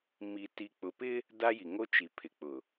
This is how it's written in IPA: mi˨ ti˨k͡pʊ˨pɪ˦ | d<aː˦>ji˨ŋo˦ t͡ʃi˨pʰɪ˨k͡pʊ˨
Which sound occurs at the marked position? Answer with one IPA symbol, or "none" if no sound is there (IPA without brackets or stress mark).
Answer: a˦